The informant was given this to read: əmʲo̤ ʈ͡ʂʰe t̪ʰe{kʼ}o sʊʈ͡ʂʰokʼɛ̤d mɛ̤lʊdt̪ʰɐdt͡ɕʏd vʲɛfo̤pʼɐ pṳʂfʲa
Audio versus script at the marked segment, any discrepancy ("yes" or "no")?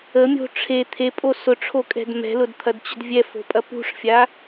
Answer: yes